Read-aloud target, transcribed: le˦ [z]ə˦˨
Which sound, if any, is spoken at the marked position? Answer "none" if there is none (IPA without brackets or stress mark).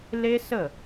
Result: s